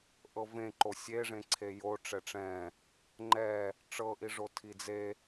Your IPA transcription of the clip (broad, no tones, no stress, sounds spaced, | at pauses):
ʔ ɤ v ẽ ǃ o sʲ e ʐ ẽ ǀʰ e j o ʈ͡ʂ ɛ ʈ͡ʂ ɛ̃ | ŋ͡ǃ ɛ | ʈ͡ʂ ɤ ʔ i ʐ o tʰ i d͡z e